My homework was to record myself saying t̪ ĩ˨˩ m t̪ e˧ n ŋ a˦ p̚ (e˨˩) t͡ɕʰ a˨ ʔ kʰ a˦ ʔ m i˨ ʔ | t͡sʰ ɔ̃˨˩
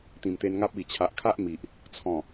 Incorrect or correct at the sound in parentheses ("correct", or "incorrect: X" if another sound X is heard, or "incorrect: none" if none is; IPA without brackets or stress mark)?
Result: incorrect: i˨˩